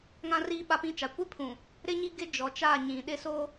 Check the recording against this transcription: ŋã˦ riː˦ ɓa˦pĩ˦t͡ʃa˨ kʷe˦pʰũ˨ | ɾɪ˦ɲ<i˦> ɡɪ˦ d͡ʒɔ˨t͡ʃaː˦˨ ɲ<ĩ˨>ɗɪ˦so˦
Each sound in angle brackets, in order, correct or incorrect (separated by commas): correct, correct